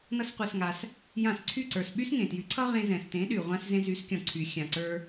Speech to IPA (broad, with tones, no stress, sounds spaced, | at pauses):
n ʌ˦ s qʷ ɛ˧ s ŋ a˧ s | j ã˦˨ s ǀʰ y˦˨ ǀ ə˞˨ s ɓ y˦ s ŋ ẽ˨ t j y˨˦ ǀʰ ʌ˦ ʁ ẽ˧ z ɛ̃˨ s t ẽ˨˦ ɗ y˨ ʁʷ ã˧ s z ẽ˧ z y˨˦ s kʲ ɔ̃˨ ǀʰ y˨ xʲ ã˨ ǀ ə˞˧